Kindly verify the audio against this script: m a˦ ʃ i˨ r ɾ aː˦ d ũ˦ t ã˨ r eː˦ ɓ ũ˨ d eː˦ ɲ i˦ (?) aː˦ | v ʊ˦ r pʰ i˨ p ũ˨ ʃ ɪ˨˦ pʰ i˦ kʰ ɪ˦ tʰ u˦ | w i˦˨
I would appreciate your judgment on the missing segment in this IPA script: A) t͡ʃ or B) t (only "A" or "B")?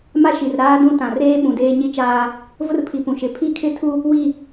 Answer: A